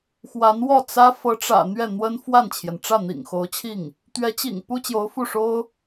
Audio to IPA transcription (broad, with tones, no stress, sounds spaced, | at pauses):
x w a˧˥ n w ɔ˥˩ t͡s ä˥ f ɤ˧˥ ʈ͡ʂ ä̰˨˩ n̪ ɥ ɛ˥˩ n̪ w ə˥ n f w a˥˩ n t͡ɕʰ j ɛ˩ n ʈ͡ʂ ä˥˩ n̪ ḭ˨˩ ŋ x o˧˥ ʊ̯ t͡ɕʰ i˥˩ ŋ | t̪ ɥ ɛ˧˥ t͡ɕ ḭ˨˩ ŋ p u˥ t͡ɕ j o˧˥ ʊ̯ f u˥˩ ʂ o˥ ʊ̯